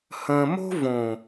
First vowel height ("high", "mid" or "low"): mid